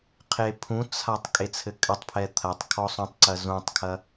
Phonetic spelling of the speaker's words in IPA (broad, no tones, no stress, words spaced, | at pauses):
qʰepʰũt͡sʰatˤ kʼet͡sʰɘkʼɘtˤpʰɛ t̪ʰɐtˤ kʰɔsˤũtˤǀɐ zũtˤkʰɐ